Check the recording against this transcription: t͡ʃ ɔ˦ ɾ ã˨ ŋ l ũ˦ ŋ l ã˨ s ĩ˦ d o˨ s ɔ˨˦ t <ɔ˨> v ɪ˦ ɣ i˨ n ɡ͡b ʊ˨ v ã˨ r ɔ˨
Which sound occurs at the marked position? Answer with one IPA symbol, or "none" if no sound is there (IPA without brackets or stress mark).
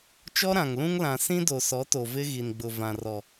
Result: o˨